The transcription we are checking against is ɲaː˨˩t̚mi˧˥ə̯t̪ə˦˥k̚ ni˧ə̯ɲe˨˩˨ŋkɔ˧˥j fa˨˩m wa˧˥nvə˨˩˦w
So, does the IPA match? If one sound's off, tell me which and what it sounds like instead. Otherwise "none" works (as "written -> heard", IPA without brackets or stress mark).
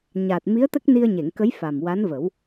ɔ˧˥ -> ə˧˥